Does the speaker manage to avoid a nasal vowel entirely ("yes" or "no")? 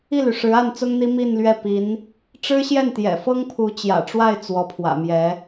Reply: yes